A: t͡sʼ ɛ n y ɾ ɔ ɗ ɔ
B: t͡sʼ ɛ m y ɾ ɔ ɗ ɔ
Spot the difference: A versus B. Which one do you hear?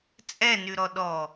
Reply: A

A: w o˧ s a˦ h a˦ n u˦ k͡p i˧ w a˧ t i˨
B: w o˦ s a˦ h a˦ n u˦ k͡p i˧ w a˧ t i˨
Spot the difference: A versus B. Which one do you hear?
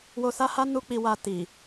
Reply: A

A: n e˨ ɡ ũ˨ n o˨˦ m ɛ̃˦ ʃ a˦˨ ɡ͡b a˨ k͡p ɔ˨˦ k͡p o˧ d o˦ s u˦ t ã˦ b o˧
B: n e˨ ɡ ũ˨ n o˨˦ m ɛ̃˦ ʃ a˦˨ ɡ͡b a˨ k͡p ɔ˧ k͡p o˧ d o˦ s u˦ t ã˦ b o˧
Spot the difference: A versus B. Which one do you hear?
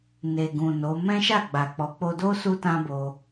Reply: A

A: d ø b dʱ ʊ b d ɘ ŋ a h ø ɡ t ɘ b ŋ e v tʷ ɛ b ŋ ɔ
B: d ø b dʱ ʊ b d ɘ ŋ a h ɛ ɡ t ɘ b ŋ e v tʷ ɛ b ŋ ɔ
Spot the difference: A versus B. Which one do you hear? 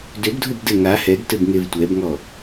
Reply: B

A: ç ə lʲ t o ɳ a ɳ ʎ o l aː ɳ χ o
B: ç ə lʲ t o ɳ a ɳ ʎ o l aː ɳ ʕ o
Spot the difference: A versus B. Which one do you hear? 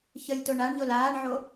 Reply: B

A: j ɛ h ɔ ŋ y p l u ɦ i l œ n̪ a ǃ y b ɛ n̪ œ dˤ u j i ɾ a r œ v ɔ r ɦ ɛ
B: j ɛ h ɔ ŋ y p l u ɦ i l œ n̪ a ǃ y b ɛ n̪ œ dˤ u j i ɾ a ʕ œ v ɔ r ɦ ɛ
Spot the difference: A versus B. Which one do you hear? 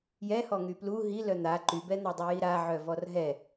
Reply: B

